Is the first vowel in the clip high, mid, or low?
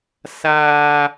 low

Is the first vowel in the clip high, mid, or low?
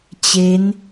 mid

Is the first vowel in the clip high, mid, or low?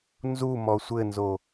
high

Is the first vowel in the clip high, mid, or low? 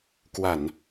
low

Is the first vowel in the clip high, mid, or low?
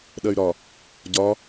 low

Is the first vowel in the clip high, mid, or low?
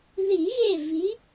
high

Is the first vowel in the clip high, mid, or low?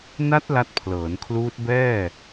low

